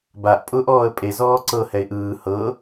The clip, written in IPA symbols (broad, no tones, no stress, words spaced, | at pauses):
baʔ pʼʊːʔɔːə̯pʼe zɔːǀɤ hɛɪ̯ʔɯː hɤ